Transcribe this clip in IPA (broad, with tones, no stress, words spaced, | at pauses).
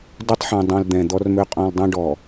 do˦tˤħɛ̃˨ dˤõ˨l d̪ɛ̃˨d̪ɔ˦rmø˦ qʼɔ̃˨l dˤã˦ɖɔ˨